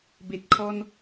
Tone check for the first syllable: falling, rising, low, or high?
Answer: low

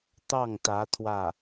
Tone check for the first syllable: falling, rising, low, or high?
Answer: falling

